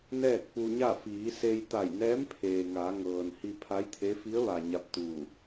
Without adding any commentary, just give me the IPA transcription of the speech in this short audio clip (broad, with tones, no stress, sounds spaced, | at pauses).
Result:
n ɛː˥˨ k̚ p u˧ ɲ a˥˨ f iː˩˧ s e˧ j t̪ a˧˩ j n ɛː˧˥ m pʰ eː˩ ŋ a˩˧ ŋ ɤː˩ n h i˧ pʰ a˧˥ j t̪ʰ e˧˥ f i˧˥ ə̯ ʋ a˩ ɲ a˧˥ p̚ t̪ uː˧˩